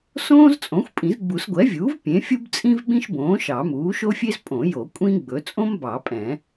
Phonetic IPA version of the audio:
s õː˥ z t͡sʼ õ˩˥ xʷ pʼ ĩ˨˩˦ z ɡ͡b u˨˩˦ s ɡʷ ɛ˩˥ vʲ uː˩˥ v pʲ ẽ˩˥ fʲ u˥ b t͡sʼ ĩ˥ v ɓ ĩ˥ ʃ b õː˩˥ ʃ ɑ˨˩˦ m uː˩˥ ʃ o˥ fʲ e˥ z pʼ õ˨˩˦ j o˨˩˦ kʷʼ ĩ˥ ɡ͡b ɵ˩˥ t͡sʼ õ˥ m b ɑ˨˩˦ pʼ ɛ̃˨˩˦

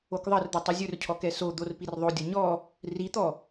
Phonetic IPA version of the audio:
o k ðˤ ʌ r d̪ ɵ tˤ i zʲ ɵ r cʰ ɔ k ɛ s o d̪ o r p i r ðˤ o dʲ ʌ ɲ ɔ | r i t̪ ɔ

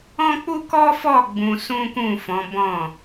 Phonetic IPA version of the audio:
ɔ̃˦ k͡p u˦ k ɔ˦ f ɔ˦˨ ɡ͡b ũ˧ s ũ˦ k ũ˦˨ f ɔ̃˨˦ b ɔ̃˦˨

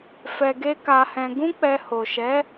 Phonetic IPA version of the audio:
f ɛ˧ ɡ e˦ k a˧ h ɛ̃˧ ɡ ũ˦ k͡p ɛ˧ h o˨ ʃ ɛ˨˦

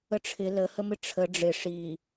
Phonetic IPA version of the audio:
ə ʈ͡ʂʰ ɪ l ə h ə m ɪ ʈ͡ʂʰ ə ɖ͡ʐ ɪ ʂ i

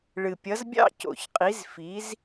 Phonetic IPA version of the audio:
ɭ ɨ˨˩ pʲ ʌ˨˥ z bʲ ɑ̰˥˨ c o̰˨˩ ç qʼ i˨˥ z f i˨˥ z

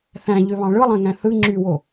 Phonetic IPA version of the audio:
θ æ̃ ʎ ø β ɑ̃ ɭ ɯ lˠ æ̃ ŋ æ̃ θ ɯ ŋ͡ǁ y w o

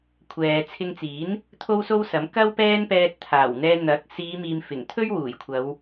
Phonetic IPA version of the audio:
kʷʰ ɛː˨ t͡sʰ ɪ˧ ŋ t͡s iː˨˥ n | t̪ʰ o˥ w s o˥ w s ɐ˨˥ m k ɐ˥ w p ɛː˥ n p ɛː˧ t̚ t̪ʰ aː˨˩ w n̪ ɛː˧ n̪ ɐ˨˥ k̚ s iː˨˧ m iː˨ m f ɪ˨˩ ŋ t̪ʰ ɵ˥ ɥ w uː˨˩ j kʷʰ ɐ˨˧ w

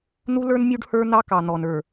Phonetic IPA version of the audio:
n̪ u˦ l ə˞˦ n mʲ u˦ ɖ h ə˞˦ n̪ ɑ˦ k ɑ˨ n̪ ɔ˨ n ə˞˨

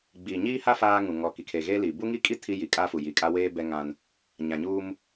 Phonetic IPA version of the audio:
ɡ͡b iː˨ ɲ iː˦ h a˦ f aː˦ ŋ ũ˨ ŋ ɔ˨ k i˨ kʰ e˨ ɣ eː˦ l i˨ b u˦ ŋ i˦ kʼ i˦ tʰ i˦ j i˨ kʼ a˦ f u˨ j i˨ kʼ a˦ w eː˦ b ɛ˦ ŋ ã˦ n | ɲ ã˨ ɲ u˦ m

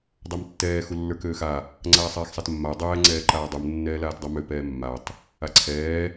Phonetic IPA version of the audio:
dˤ a m tː ɛː x u lː ə˞ k øː x a | ŋ͡ǀ aː sˤ ɛː x sˤ a t mː a ɐ̯ dˤ ɛː ŋ͡ǀ ɛː ǃ aː dˤ u m nː ɛː l aː t dˤ u m ø p ɛː mː a tˤ | a ǀʰ ɛː

